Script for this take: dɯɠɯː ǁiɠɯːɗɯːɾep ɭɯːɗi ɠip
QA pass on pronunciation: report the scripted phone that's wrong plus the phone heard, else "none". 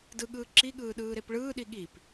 none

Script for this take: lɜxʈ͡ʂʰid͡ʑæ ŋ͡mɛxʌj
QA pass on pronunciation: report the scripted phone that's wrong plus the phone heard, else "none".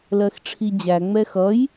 none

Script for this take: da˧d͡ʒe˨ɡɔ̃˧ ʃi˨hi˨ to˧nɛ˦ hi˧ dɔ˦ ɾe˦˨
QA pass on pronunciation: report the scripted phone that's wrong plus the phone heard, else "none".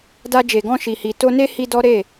ɛ˦ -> e˦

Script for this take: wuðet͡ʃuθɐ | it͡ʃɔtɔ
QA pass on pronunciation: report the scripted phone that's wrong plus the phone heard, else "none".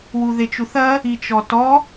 none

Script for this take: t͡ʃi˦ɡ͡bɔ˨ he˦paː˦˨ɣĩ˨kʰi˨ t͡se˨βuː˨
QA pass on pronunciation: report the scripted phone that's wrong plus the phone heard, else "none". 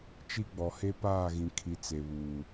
none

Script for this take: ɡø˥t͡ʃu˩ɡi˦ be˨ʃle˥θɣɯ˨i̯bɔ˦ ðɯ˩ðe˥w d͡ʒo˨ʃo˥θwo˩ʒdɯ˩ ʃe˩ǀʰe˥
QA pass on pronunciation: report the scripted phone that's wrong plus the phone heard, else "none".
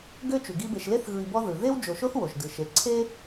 none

